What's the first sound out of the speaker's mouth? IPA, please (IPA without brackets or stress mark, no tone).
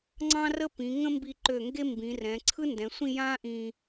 ŋ͡ǀ